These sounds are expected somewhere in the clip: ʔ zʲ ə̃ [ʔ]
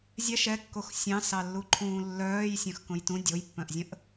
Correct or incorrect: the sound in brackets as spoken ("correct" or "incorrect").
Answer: correct